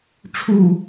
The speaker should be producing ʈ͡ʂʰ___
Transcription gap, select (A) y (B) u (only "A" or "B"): B